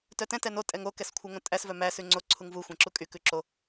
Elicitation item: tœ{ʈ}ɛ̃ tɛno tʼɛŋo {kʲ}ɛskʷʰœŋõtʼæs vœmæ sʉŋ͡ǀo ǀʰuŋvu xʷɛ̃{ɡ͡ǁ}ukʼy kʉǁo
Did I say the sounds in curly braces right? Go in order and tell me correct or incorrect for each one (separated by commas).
incorrect, incorrect, incorrect